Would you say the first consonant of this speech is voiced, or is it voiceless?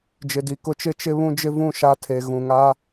voiced